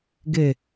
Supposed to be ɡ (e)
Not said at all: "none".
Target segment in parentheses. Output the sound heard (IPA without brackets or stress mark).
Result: e